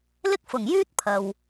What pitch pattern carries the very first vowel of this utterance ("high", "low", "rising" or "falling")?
high